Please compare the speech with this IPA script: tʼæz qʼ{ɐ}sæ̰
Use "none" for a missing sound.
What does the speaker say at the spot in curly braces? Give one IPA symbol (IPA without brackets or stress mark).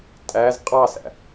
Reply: ɑ